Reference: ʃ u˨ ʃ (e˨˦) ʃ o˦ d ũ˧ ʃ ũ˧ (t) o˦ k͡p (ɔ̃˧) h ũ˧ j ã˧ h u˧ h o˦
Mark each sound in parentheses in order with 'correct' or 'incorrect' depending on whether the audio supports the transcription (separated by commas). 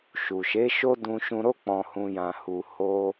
correct, incorrect, correct